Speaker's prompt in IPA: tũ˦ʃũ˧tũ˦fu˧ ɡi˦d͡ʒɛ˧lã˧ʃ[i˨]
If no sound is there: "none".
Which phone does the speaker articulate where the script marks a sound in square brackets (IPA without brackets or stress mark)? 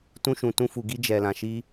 i˦